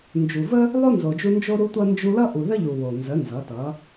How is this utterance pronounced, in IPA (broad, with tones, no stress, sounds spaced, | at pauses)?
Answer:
n d͡ʒ u˨ v ə˦ | lˠ o˦ n z o˨ d͡ʒ u˧ n d͡ʒ o˦ ɾ u˦ tʷ ʌ˦ n d͡ʒ u˧ l ʌ˦ ʔ u˨ ð ə˦ ʎ u˨ w o˨ n z ə˨˦ n z ʌ˨˦ t ʌ˨˦